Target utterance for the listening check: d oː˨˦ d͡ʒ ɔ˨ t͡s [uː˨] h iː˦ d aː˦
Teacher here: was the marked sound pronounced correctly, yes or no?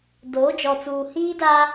yes